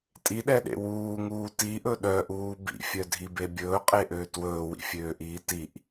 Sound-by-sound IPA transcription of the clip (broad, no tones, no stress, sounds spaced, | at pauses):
tʼ i ɗ ɛ ɗ ḛ w uː ŋ uː t i ʔ ɵ ɗ œ ʔ uː b ḭ fʲ œ dʱ i b e bʲ ɵː qʼ e ʔ øː t w ɵː w ḭ fʲ øː ʔ iː t i ʔ